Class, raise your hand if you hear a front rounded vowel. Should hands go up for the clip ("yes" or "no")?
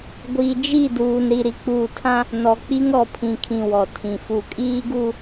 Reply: no